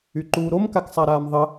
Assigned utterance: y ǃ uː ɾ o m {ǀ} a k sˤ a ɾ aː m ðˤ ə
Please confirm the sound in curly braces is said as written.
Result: no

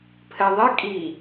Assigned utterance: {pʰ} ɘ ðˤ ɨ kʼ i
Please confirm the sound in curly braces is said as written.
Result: yes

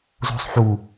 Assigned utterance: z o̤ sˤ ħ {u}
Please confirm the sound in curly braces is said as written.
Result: yes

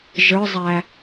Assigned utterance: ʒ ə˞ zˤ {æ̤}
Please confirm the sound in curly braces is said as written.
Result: no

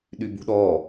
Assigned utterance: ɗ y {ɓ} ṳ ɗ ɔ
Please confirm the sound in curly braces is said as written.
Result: no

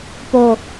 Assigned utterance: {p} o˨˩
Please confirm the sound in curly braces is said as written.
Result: yes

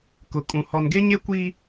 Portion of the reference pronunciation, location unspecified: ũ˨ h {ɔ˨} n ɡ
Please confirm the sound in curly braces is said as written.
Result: yes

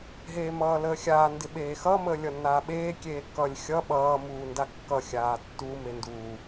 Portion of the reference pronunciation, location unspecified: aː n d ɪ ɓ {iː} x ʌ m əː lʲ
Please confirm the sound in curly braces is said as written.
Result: no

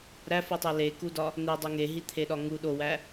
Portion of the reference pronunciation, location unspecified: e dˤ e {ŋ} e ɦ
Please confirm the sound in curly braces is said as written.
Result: yes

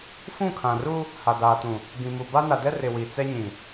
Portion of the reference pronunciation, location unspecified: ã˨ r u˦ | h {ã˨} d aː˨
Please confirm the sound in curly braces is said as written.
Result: no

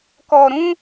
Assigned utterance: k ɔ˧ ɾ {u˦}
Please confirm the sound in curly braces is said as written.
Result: no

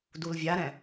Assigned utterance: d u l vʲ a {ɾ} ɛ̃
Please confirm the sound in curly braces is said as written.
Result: yes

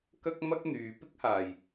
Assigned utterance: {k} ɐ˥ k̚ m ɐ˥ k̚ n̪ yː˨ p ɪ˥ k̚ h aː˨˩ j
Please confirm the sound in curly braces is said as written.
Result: yes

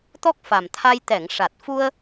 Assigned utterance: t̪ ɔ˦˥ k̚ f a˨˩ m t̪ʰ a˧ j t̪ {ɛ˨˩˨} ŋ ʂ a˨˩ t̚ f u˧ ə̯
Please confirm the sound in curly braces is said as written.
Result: yes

